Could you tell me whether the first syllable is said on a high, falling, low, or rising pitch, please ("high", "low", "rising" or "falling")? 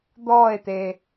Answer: falling